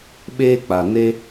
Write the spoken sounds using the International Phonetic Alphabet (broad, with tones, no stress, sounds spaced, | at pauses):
ɓ eː˧ k͡p a˨ n e˧